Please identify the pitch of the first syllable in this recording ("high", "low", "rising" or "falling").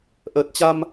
low